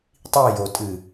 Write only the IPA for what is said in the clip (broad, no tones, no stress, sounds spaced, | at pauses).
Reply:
tˤ i j o tʼ ɨ